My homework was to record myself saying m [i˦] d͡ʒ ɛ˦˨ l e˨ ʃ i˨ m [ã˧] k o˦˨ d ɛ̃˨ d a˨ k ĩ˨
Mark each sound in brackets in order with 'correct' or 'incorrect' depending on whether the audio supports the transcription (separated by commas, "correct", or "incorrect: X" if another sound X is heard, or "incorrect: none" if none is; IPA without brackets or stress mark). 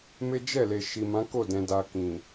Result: incorrect: e˦, incorrect: ã˨˦